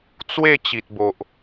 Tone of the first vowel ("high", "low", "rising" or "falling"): falling